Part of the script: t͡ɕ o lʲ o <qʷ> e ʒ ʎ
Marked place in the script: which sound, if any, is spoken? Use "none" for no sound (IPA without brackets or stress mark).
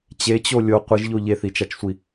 qʷ